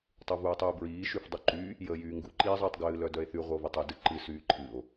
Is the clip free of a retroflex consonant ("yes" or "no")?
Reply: yes